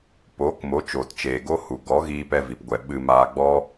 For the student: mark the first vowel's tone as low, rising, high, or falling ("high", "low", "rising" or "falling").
rising